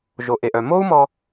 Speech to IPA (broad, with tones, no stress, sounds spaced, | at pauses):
ʒ o˩ ʔ e˩ ʔ œ˩ m o˥ u̯ m ɔ˧